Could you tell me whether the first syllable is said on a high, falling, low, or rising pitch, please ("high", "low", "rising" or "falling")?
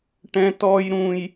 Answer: high